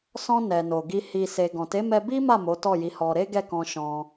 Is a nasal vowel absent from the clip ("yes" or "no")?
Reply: no